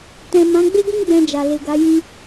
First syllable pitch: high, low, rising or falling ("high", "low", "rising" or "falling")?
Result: low